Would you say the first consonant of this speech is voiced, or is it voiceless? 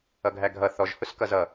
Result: voiced